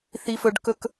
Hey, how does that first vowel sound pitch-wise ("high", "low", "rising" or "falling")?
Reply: high